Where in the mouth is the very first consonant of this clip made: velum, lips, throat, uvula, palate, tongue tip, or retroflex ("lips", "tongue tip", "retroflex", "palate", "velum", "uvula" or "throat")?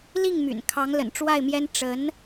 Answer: tongue tip